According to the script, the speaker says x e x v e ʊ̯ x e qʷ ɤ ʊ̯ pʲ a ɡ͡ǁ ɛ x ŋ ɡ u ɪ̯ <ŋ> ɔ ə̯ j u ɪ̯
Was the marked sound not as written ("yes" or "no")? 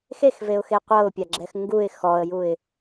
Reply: yes